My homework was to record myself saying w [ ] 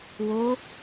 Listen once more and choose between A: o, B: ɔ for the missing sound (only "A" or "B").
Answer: A